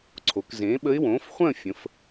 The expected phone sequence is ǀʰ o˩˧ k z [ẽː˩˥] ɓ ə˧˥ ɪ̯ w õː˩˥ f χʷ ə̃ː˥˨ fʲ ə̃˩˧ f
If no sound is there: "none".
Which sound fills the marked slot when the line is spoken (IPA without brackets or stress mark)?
ẽː˩˥